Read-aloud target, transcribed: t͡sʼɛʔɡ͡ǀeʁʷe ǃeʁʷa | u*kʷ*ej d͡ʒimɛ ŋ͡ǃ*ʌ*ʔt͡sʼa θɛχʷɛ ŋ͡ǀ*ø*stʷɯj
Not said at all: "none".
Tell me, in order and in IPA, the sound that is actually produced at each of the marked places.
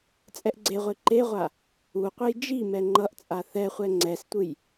qʷ, ʌ, ɛ

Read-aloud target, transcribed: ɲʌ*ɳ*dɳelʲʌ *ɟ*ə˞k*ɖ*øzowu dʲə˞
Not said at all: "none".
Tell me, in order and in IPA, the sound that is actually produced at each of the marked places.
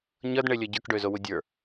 none, ɟ, ɖ

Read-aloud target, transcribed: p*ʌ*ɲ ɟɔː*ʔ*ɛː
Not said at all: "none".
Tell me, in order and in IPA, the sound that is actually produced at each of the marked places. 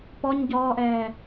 ɔ, ʔ

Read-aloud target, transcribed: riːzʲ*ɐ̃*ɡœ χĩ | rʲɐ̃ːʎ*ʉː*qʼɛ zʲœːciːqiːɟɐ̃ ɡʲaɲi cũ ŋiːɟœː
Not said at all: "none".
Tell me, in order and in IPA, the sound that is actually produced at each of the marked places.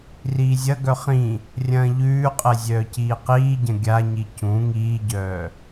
ɐ, ʉː

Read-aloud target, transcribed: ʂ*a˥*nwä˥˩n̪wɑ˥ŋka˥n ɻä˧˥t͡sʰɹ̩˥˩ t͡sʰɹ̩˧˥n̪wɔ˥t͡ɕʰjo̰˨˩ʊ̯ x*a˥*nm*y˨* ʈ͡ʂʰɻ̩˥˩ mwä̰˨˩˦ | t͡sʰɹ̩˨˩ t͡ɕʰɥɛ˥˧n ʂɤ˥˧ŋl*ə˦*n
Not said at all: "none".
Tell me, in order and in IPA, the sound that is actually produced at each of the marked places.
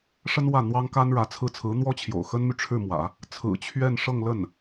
ə˥, ə˥, y˨, ə˥˩

